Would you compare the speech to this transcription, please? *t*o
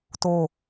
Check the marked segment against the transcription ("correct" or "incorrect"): correct